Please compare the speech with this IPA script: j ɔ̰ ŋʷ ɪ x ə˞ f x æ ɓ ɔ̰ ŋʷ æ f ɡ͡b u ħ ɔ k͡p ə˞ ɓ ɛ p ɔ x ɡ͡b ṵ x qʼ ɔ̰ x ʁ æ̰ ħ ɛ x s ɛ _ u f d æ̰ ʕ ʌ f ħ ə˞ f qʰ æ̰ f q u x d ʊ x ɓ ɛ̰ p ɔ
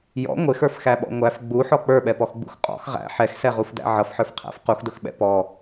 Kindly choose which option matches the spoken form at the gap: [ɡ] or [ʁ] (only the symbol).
ʁ